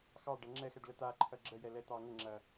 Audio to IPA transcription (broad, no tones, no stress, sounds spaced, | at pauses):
x ɑ ɖ ɐ ŋ͡ǁ ɛ x ɛ ɖ l ə t̪ a ǃʰ ɐ ɡ͡ǁ ə j ɛ l ɛ t̪ ɑ ŋ ə ŋ͡ǁ ɐ